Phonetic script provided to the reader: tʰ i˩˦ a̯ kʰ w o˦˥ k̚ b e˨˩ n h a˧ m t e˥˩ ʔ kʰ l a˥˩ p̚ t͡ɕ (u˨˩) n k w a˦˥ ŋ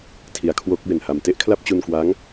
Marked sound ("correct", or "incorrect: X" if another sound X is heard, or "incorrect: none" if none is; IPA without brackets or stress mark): incorrect: u˧